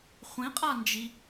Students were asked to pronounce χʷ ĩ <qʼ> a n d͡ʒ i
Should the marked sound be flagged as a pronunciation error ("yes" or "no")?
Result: no